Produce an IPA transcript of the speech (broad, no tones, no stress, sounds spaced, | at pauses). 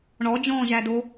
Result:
ɳ ɔ d͡ʒ ɔ̃ː ʒ æ d o